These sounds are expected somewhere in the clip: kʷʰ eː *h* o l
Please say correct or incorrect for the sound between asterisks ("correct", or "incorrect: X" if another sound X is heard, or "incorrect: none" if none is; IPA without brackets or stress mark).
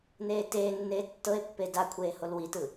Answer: correct